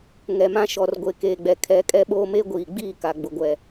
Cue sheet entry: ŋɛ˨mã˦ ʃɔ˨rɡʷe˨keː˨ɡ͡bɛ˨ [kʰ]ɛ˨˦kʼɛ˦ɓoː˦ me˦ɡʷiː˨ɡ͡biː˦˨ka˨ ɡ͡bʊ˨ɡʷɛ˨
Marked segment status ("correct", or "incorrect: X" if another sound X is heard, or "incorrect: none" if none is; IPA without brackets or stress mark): correct